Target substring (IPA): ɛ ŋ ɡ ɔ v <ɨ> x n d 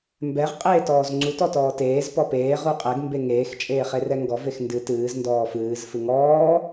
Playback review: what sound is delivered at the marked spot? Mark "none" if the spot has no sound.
e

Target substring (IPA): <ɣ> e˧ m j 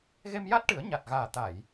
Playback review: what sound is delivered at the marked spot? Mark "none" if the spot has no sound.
ɣ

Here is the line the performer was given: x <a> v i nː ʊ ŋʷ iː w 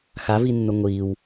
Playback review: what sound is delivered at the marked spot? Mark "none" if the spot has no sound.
a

